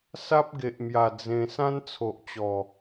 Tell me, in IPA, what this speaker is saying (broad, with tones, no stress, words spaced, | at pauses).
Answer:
sa˦p̚ɡe˨ʔmja˨˩ d͡zẽ˧ sã˦nt͡sʰo˨ʔt͡ɕɔ˨˩